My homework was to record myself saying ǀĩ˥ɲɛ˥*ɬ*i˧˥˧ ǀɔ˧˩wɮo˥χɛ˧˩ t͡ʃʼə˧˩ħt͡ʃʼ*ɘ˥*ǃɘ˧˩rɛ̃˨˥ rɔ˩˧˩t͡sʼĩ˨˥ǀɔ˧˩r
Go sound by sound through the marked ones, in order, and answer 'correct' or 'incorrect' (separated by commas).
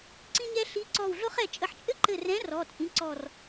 correct, correct